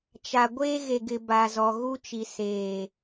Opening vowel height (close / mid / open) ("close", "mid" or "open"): open